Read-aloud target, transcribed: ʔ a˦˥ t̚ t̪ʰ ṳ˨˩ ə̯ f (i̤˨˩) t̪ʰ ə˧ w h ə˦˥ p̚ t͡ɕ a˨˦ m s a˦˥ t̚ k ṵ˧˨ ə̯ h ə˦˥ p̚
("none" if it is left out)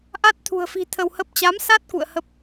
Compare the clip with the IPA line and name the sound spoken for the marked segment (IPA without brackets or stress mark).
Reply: i̤˨˩